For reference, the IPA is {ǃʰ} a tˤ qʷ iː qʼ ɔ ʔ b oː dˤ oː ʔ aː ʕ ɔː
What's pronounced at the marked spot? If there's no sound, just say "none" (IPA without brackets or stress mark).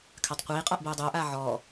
kʰ